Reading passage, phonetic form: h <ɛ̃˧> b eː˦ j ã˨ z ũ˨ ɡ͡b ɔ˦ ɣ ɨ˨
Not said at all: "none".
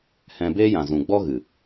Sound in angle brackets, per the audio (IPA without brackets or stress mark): ɛ̃˧